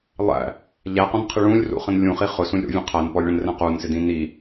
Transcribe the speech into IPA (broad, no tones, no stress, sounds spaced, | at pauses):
lˠ æ̰ | ʎ æ q ɔ̃ n qʰ ɪ ɭ ũ lʲ r ṵ χ ə̃ n lʲ ũ χ i χ ʊ s ũ lʲ ɾ ṵ vʲ ɛ̃ qʰ æ n p ɔ lʲ ɭ ə̃ n r ɛ̃ q u n s ɪ d ĩ n i